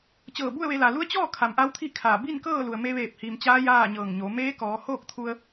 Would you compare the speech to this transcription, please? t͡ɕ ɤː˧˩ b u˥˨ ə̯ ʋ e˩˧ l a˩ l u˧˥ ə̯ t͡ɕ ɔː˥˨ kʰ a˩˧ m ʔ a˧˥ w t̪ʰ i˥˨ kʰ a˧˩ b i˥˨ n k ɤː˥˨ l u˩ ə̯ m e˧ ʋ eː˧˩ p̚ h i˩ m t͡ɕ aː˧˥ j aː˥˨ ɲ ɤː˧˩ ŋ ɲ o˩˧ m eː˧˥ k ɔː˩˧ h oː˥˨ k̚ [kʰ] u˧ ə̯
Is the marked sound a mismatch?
yes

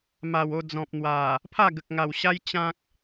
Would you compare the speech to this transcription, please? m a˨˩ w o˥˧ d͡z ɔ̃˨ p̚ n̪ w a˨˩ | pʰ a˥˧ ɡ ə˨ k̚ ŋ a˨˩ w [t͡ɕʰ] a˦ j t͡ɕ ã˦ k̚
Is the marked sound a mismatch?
yes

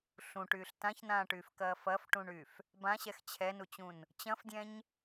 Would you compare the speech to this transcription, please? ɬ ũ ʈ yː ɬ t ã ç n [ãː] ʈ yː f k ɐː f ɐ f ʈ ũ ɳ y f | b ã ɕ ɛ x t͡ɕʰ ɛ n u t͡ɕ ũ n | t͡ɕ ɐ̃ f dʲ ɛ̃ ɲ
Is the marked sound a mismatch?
no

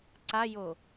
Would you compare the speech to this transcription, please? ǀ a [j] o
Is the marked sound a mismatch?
no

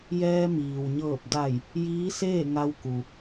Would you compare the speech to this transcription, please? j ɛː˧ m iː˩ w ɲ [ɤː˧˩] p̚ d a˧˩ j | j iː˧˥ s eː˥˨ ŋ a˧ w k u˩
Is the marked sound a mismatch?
no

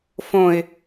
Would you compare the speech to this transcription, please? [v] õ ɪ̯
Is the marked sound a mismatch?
yes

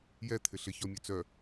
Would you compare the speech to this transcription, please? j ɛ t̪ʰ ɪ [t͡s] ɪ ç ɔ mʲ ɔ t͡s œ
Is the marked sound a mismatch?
yes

